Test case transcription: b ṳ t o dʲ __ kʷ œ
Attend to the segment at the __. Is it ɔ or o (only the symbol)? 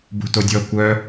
ɔ